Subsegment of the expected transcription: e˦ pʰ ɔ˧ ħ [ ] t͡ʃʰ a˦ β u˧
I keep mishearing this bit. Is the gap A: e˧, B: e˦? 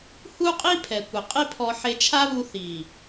A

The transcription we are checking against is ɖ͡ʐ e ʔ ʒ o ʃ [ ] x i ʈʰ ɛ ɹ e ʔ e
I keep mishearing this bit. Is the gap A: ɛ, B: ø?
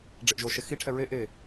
A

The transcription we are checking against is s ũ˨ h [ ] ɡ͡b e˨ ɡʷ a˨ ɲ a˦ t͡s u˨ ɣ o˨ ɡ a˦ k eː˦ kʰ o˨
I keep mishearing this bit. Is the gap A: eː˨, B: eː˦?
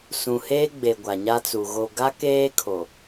B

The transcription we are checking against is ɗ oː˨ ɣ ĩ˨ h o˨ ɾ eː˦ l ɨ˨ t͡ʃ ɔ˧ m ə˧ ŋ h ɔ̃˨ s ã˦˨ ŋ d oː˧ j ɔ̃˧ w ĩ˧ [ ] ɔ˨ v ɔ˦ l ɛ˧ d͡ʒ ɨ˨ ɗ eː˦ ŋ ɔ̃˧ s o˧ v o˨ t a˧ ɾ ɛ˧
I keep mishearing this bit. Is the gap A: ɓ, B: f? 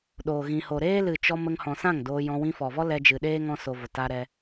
B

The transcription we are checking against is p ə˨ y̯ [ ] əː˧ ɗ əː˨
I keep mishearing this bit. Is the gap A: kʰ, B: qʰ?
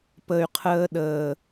B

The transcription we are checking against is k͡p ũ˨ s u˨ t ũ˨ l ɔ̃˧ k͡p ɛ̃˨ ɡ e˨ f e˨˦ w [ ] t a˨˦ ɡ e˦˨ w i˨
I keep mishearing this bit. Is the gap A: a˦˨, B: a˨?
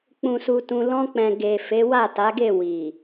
A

